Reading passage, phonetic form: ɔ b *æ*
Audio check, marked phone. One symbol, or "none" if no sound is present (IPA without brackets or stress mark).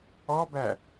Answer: æ